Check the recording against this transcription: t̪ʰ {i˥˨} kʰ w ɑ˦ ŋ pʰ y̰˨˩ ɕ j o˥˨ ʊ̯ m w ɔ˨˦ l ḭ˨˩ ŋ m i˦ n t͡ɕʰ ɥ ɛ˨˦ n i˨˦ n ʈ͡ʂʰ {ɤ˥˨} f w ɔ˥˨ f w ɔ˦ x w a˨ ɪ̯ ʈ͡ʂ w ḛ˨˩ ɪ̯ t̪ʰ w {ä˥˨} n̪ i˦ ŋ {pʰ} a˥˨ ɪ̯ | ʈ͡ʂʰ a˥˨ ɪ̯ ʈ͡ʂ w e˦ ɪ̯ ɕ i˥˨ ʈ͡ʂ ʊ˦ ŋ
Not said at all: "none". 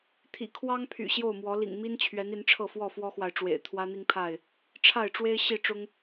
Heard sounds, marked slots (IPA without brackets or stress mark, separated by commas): ḭ˨˩, ɤ˥˨, ä˦, pʰ